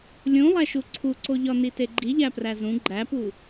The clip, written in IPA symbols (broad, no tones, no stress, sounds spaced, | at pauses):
lʲ ũ lˠ æ ʃ u ǀʰ u ǀ o ʎ ɒ n i t e ɡ͡ǃ i ʎ æ p r æ z ũ ɡ͡ǃ æ p u